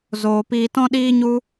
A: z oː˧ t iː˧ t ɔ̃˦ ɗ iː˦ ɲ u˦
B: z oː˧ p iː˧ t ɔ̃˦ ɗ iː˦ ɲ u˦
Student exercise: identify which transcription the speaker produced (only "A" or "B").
B